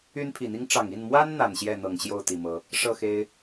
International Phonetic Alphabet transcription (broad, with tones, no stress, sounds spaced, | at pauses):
y˦ n pʰ i˨˩ n̪ i˦ ŋ ʈ͡ʂ ɑ˨˩ ŋ i˥˨ n m w a˦ n n̪ a˨˩ n ɕ j ɛ˥˨ n̪ ɤ˨˩ ŋ ɕ j o˥˨ ʊ̯ t̪ i˨˩ m ɤ˨˦ | ʂ ɤ˥˨ x e˦ ɪ̯